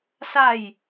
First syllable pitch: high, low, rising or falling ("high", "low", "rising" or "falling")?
falling